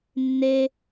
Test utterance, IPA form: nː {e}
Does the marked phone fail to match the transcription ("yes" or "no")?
no